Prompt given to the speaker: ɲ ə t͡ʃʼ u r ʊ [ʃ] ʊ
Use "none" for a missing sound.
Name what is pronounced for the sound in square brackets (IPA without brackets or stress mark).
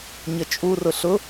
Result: ɬ